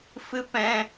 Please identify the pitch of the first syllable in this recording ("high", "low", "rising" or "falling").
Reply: high